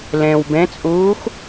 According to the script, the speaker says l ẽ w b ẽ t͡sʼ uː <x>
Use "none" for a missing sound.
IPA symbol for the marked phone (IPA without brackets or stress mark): x